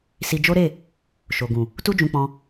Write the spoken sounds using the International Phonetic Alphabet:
s i˧ d͡ʒ o˦ ɾ e˦˨ | ʃ o˨ ɡ ũ˨ | t u˧ d͡ʒ ũ˨ k͡p ɔ̃˧

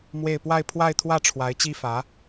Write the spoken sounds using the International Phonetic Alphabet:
m w e˥˧ ɪ̯ p w a˥˧ ɪ̯ pʰ w a˥˧ ɪ̯ t̪ʰ w ä˥˩ ʈ͡ʂʰ w a˧˥ ɪ̯ t͡ɕ i˥ f ä˧˥

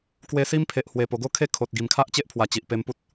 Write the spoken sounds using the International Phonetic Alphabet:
k w e˧ s i˦ m pʰ e˨ ʔ h w e˨˩ p o˨˩ ɡ o˥˧ kʰ e˥˧ kʰ o˨ t̚ ɡ i˨˩ m kʰ a˦ ʔ t͡ɕ e˦ ʔ pʰ w a˨˩ t͡ɕ i˨ ʔ p e˧ m p u˦ t̚

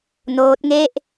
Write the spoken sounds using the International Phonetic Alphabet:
n oː˦˥ t̚ ŋ e˥˩ ʔ

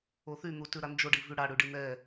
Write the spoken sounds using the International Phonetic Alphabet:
o θ y n̪ u t ʉ ɾ a n d͡ʒ o ɖ i v y ɽ a ɽ ʉ ɖ i n̪ ɛ

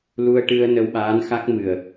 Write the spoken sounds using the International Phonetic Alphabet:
l u˧ ə̯ ʈ ɨ˧ ə̯ n ə˧ w ɓ aː˧˥ n x a˦˥ k̚ m ɨ˨˩ ə̯

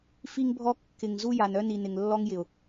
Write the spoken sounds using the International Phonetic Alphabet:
f i˦ ŋ bʱ ɔ˦ kː ɪ˨ ŋ z u˦ j a˨ n œ˦ n i˨ n ɪ˨ ŋ lː ɔ˦ ŋ j ɪ˨ ʊ̯

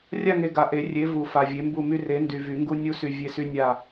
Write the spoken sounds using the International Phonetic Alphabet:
rʲ a˦˨ ŋ e˨ ɡ a˨ ʔ e˨˩˦ rʲ e˨˥ v u˨˩˦ f a˨ vʲ e˨˥ m b u˦˨ m y˦ r e˨˥ n d y˨ v y˨˩˦ ŋ ɡ u˦ nʲ u˦ s y˨ vʲ e˦˨ s y˦ nʲ a˦˨

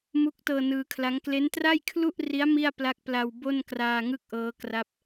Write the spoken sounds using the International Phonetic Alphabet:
m u˦˥ k̚ t ɤː˧ n ɯː˧ kʰ l a˦˥ ŋ k l e˦˥ n t r a˥˩ j kʰ l u˥˩ ʔ r i˦˥ a̯ m i˥˩ a̯ p l a˦˥ k̚ p l a˧ w b o˥˩ n k r aː˧ ŋ ɯ˥˩ k̚ ʔ ɤː˦˥ k r a˦˥ p̚

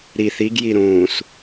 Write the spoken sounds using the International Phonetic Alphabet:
ɾ i θ i ɡ j i ɾ ũː s

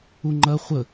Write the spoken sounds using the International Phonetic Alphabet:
u ŋ͡ǃ ɐ χʷ ə

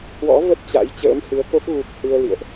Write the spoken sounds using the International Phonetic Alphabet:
h w ɔ̰˧˥ v ə˦˥ t̚ t͡ɕ a̰˧˥ j t͡ɕ ə̰ː˧˥ m h ɨ˨˦ ə̯ k o˦˥ k̚ ɣ u˨˩ k̚ h ɨ˧ ə̯ l ḭ˧˨ ə̯ ʔ

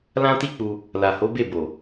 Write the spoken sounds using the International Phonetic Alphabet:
l ã˦ t i˦ k͡p u˧ | l a˨ h o˨˦ b e˦˨ b o˨

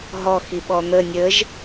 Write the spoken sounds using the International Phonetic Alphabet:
ɦ ɔ x i ɓ ɔ n̪ ə nʲ ə ʒ

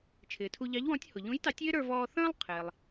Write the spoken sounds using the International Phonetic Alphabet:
t͡ʃʰ ɪː˩ tʰ u˧ ʎ ɑ˧˥ ʎ w ɔ̃˧˥ tʲ h ʊ˩ ʎ ũ˧˥ j t ɑ˧˥ tʲ ɪː˥ ɾ ə˞˧ v ɔː˧ θ ə̃ː˥ lˠ qʰ ɪː˩ lˠ

